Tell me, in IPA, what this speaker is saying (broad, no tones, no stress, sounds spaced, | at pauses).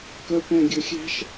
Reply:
k œ p ɛ̃ ɡʲ ɵ xʲ æ̤ ʃ